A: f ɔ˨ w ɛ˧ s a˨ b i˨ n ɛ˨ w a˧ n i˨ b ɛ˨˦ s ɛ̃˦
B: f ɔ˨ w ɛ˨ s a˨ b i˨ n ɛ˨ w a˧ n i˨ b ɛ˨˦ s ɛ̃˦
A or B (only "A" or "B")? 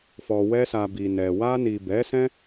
A